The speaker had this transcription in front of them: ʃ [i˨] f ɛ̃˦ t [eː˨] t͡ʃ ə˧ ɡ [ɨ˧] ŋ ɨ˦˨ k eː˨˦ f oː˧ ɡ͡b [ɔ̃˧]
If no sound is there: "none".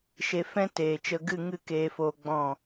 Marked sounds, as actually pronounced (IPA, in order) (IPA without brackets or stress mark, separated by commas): e˨, eː˨, ɨ˦˨, ɔ̃˦˨